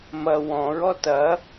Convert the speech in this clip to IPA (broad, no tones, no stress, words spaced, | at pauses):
mɐ wɔ̃ɹɔ tɐ